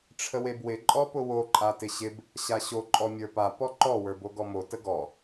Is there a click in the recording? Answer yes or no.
yes